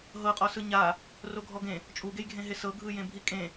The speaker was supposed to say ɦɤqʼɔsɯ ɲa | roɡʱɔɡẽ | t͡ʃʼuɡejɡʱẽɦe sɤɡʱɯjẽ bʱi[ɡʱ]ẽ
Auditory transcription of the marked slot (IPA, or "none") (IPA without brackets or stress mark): kʼ